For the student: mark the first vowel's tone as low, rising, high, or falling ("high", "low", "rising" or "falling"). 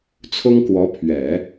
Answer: high